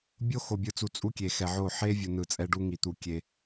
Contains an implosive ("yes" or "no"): no